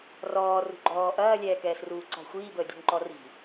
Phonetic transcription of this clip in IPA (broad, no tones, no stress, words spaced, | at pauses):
rɔː rṳɡ͡ǃɔː ʔɐːlʲɛː kɛːsruːǀɔ̤ xʷiːbəːdʲṳnǃɔ ri̤